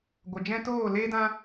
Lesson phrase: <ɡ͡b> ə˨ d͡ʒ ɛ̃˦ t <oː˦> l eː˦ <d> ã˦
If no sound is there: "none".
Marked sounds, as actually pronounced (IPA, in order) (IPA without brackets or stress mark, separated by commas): ɡʷ, oː˦˨, d